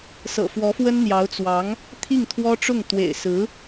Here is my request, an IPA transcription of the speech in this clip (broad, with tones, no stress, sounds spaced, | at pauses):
s ɤ̰˨˩ f w ɔ˧˥ f w ə˥ n n̪ j ɑ˧˥ ʊ̯ t͡s w ɑ˧˥ ŋ | t̪ʰ i˥˩ ŋ t̪ʰ w ɔ˥ ʈ͡ʂ ʊ˥˩ ŋ t̪ w ḛ˨˩ ɪ̯ s ɹ̩˧˥